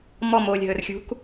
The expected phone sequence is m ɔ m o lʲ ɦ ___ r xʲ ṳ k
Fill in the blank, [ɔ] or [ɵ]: ɵ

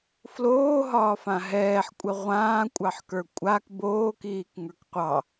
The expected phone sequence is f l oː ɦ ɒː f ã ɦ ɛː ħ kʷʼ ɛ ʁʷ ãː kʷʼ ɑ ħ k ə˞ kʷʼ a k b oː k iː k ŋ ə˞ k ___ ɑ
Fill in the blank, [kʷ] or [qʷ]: qʷ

